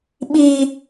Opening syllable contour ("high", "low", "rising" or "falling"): high